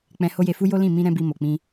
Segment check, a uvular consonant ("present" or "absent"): absent